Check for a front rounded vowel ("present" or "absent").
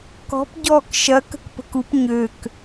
present